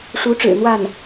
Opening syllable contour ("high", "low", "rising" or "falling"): rising